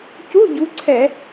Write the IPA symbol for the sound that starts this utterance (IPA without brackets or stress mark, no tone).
c